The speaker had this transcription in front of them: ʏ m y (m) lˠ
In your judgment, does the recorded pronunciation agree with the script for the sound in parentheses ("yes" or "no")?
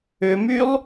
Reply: no